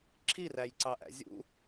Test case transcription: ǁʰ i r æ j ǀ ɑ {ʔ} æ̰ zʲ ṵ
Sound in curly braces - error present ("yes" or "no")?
no